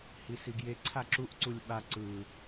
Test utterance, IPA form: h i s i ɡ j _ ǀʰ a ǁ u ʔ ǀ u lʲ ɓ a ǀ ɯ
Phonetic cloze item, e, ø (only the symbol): e